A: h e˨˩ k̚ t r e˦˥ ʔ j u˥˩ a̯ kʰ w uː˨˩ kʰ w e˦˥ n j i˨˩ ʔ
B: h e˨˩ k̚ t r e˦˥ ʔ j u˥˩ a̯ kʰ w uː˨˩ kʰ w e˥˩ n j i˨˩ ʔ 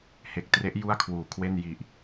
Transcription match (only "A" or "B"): B